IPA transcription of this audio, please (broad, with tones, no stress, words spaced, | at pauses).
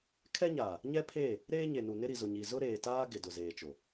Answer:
kʰɛ˦ɲaː˨ | ɲɛ˦pʰeː˦˨ | ɾeː˦ɲe˨nu˨ nɪ˦ɾi˨zʊ˨ɲi˨ zʊ˦ɾeː˨taː˦ ɡɪ˨dʊ˨zeː˨t͡ʃo˨